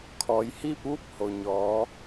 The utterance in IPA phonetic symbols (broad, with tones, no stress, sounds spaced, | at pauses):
kʰ ɔː˩˧ j h iː˥˨ p̚ ʋ u˥˨ p̚ h o˩ ɲ ɔː˩˧